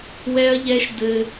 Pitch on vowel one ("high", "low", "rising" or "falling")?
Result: high